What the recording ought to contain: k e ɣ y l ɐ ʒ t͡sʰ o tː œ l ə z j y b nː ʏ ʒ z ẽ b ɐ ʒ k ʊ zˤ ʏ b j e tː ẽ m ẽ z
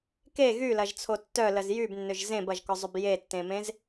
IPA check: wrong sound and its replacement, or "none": none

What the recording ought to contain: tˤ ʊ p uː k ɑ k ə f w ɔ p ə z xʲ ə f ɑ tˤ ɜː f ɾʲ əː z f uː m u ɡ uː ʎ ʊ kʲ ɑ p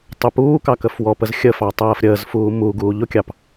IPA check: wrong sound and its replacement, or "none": none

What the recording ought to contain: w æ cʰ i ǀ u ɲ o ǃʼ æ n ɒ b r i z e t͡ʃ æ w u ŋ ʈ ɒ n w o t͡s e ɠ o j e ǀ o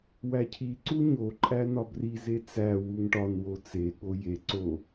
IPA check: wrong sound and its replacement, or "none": t͡ʃ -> t͡s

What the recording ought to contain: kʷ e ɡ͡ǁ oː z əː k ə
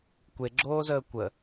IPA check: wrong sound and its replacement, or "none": k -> kʷ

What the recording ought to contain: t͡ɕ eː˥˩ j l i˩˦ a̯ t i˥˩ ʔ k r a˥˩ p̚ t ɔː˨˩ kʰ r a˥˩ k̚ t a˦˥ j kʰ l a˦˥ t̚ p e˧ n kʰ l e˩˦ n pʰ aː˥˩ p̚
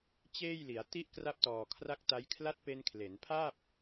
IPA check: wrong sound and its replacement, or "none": none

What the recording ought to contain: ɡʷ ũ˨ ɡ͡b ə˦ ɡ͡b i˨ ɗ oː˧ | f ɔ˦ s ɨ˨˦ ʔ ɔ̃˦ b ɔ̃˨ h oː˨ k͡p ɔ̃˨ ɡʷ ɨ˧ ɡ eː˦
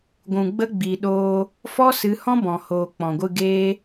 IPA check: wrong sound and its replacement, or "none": ʔ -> h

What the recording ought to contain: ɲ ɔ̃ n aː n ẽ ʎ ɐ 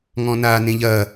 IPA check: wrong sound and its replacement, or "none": ɲ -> ŋ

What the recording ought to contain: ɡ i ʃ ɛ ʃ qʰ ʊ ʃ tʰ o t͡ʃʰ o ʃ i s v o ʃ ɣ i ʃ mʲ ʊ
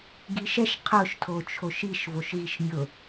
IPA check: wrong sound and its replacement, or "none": s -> ʃ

